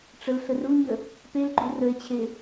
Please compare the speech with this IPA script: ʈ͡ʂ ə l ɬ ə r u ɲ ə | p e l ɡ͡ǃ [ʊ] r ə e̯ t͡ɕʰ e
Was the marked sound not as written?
yes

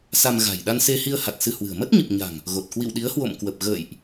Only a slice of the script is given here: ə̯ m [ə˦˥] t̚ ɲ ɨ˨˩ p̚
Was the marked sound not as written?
no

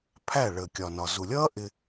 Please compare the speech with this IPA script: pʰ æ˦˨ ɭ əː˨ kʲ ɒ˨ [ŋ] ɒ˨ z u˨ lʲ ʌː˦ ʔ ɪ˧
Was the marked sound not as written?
yes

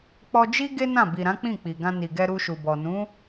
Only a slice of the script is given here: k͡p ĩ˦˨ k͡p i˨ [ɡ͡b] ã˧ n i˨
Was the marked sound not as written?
yes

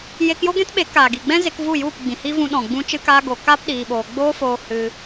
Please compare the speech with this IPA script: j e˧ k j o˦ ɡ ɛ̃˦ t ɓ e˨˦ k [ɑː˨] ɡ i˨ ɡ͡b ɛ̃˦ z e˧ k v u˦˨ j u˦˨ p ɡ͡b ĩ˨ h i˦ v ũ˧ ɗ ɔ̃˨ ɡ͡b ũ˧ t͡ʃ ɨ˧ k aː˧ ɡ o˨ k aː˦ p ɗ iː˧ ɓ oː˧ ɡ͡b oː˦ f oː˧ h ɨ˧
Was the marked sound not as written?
yes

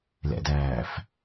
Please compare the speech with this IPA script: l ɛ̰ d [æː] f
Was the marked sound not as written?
no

